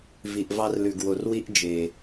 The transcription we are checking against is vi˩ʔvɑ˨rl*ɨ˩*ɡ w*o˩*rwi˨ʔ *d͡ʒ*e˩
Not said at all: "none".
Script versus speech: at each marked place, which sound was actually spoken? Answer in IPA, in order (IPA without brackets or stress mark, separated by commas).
ʉ˩, o˩, d͡ʒ